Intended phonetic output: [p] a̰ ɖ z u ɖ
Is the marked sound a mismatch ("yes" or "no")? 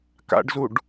yes